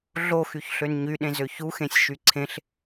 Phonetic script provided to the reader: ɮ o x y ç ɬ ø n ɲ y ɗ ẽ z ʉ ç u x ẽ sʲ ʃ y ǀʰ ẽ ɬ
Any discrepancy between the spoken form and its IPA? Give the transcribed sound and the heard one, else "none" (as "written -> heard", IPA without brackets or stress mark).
ʉ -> ø